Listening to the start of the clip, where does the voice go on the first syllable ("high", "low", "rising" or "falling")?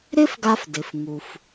high